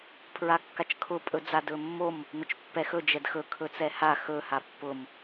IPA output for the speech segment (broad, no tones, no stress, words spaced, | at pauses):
pʰɹakːat͡ʃkʰʊ pʼɵd͡zadɵmːom | nʊt͡ʃpːɛxɵ d͡ʒɛdxɵ kʰɵt͡sɛha xɵ hapːʊm